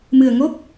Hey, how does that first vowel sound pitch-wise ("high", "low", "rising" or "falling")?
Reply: low